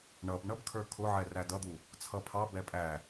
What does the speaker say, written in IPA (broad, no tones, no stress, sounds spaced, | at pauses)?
ɳ ʌ b ɳ ʌ b kʰ ə˞ kʰ ʊ ʕ ɛ r æ d ʌ d̪ u | t͡sʰ ʌ pʰ ɑ b ɛ pʼ æ